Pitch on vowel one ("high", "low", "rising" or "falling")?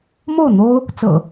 falling